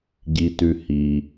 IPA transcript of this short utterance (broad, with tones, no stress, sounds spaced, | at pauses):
ɟ i˩ t ʉ˩ h i˩